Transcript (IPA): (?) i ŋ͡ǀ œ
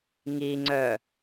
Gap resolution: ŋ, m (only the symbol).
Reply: ŋ